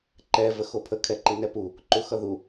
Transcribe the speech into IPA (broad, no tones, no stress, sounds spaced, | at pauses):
ǃ ɛ v ə x o pʰ ə kʰ ɛ ǃ i n ɛ p u | ǃ u x ʌ ð u